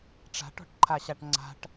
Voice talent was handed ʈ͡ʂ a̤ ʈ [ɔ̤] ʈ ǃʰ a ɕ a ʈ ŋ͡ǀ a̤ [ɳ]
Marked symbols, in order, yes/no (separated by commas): yes, no